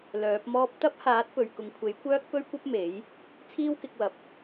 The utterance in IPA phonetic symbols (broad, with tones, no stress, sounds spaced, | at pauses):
l œː˨˥ p̚ m ɔː˥ p̚ t̪ ɐ˥ p̚ h aː˨˥ t̚ p ɵ˨ ɥ k ʊ˨ ŋ kʷʰ e˨˥ j kʷ œː˥ k̚ p ɵ˥ ɥ kʷ ɐ˥ p̚ m e˨˥ j | t͡sʰ iː˥ w k ɪ˨˥ k̚ w ɐ˨ p̚